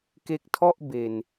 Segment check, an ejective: absent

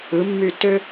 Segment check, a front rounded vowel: present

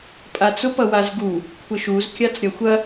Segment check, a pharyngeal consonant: absent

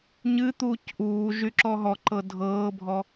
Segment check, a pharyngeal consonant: absent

